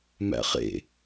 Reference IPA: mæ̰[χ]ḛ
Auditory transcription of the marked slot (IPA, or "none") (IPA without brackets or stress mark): χ